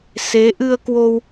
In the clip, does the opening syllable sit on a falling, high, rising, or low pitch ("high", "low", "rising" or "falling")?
rising